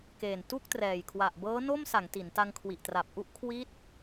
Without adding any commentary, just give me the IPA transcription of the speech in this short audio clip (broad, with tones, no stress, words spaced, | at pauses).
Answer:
keː˨˩n tu˥˩k̚trɛː˨˩jkʰwa˨˩ʔ bɤː˦˥no˥˩msa˩˦ŋ ti˩˦nta˧ŋkʰwi˨˩ʔ tra˨˩p̚ʔu˥˩ʔkʰwi˦˥t̚